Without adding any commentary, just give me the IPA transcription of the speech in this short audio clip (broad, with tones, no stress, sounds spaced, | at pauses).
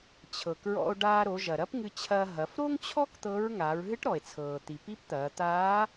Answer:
t͡ɕʰ ɤ˩ k ɹ ɔ̰˧ o̯ ɖ aː˧ ɾ o˩˧ ʒ ɐ˩ ɾ ɐ˧˥ p ŋ ɨ˧ t͡ɕʰ ɐː˧ ɦ ɐ˩˧ f ɾ o˥ ŋ t͡ɕʰ ɔ˥ k t̪ ɤ˧˥ ɹ ŋ aː˩˧ ɹ ɦ ɨ˧˥ ʈ ɾ ɔ˩ e̯ t͡sʰ ɤː˩ t̪ i˩ p i˧˥ p t̪ ɐː˩˧ t̪ aː˧˥